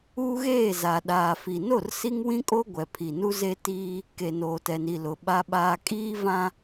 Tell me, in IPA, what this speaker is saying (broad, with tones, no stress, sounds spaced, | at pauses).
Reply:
uː˦ ɣ eː˦˨ z a˨ ɗ aː˨ f i˨ n o˦˨ r s i˦ ŋ w ĩ˦ kʼ o˦ ɡʷ ɛ˨ pʰ i˨ n u˦ z e˦ t iː˦ | k e˨ n oː˨ t ɛ˨ n i˨ l ʊ˨ ɓ a˦ ɓ aː˦ kʼ iː˦ v ã˦